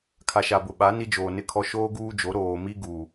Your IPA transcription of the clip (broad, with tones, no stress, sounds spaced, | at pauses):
kʰ a˨ ʃ a˨ b ʊ˨ ɓ a˨˦ n i˦ d͡ʒ oː˨ n ɪ˦ kʰ ɔ˦ ʃ oː˦ ɡ uː˦ d͡ʒ o˨˦ ɾ oː˨ m i˦ ɡ u˨